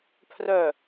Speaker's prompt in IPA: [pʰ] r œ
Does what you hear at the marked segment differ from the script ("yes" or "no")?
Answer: no